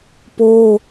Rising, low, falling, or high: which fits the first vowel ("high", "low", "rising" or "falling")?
high